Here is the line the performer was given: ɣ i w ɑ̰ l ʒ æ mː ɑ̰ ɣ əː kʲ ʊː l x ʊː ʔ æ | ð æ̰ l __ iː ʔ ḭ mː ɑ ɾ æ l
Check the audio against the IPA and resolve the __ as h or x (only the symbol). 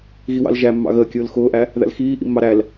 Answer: x